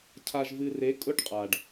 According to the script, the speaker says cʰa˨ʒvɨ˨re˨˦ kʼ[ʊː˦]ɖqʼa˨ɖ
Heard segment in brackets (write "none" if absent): ʊ˦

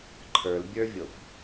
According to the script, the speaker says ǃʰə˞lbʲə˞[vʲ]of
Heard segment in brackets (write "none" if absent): vʲ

